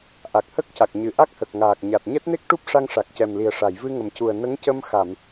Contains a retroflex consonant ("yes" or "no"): yes